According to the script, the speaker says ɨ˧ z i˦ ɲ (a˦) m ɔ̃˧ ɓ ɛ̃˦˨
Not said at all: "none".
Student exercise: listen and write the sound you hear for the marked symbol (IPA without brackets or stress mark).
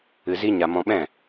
a˧